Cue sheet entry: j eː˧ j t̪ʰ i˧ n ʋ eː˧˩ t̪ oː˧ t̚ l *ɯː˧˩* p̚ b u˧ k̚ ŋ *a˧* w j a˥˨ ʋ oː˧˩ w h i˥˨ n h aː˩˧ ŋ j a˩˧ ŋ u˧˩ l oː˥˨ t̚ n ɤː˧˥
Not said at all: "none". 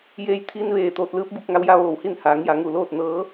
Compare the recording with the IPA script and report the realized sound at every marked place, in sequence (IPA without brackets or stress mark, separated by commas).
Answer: ɯː˧˥, a˧